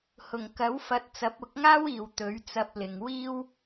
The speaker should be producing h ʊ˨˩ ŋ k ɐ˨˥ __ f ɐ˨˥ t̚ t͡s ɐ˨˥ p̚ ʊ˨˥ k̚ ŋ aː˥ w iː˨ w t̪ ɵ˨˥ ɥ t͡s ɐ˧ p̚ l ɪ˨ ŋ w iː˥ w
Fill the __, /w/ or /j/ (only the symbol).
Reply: w